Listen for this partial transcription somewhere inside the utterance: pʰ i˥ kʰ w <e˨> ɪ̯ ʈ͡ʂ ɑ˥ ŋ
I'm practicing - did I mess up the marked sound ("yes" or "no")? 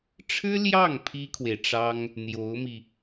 no